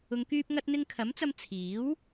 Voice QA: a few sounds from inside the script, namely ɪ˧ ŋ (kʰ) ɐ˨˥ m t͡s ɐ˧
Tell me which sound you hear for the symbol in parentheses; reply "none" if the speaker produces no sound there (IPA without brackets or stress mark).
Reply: kʰ